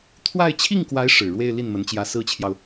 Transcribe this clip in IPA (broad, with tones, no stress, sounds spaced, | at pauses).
t̪ʰ w a˥˧ ɪ̯ t͡ɕʰ i˥˩ ŋ k w a˧˥ ɪ̯ ʂ ɻ̩˨˩ ɻ w e˥˧ ɪ̯ l i˥˩ n m ə˧˥ n t͡ɕ j ä˧˥ s ɹ̩˥ t͡ɕʰ j ɑ˨ ʊ̯